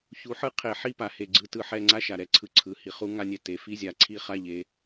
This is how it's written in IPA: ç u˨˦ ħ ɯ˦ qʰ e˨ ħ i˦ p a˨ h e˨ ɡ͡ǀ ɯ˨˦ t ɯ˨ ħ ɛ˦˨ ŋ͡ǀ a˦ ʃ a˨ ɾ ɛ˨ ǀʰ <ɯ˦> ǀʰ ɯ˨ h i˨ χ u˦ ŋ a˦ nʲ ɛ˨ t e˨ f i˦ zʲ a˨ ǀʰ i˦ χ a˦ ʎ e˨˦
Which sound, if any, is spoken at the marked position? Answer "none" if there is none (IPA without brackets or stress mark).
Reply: ɯ˦